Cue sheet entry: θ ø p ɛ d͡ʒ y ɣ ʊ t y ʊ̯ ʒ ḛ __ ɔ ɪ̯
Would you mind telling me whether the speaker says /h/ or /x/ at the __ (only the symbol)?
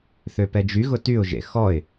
x